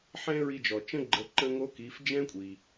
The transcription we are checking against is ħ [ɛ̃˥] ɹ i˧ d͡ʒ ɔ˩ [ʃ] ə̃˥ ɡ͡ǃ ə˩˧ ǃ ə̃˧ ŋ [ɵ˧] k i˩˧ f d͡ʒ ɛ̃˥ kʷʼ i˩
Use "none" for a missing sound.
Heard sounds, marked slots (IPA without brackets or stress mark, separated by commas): ɛ̃˥, t͡ʃ, o˧